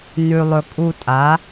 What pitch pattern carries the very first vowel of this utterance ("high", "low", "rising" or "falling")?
low